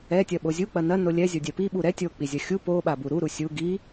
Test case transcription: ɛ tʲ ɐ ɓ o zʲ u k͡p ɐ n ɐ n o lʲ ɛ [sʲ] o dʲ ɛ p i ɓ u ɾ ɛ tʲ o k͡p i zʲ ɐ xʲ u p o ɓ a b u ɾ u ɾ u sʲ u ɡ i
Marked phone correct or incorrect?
incorrect: zʲ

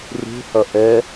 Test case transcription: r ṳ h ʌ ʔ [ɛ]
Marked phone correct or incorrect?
correct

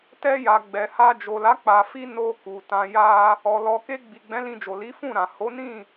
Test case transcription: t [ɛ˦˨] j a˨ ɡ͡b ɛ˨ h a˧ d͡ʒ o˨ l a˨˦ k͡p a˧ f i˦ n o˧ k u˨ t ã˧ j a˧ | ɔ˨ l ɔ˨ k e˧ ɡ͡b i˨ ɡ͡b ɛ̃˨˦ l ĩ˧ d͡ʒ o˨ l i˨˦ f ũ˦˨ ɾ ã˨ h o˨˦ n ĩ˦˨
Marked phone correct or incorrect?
incorrect: ɛ˧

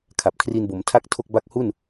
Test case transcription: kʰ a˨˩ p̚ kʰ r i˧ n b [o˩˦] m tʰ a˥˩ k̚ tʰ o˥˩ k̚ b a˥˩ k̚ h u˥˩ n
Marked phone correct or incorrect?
correct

